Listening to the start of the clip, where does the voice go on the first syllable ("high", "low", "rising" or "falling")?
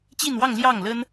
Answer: falling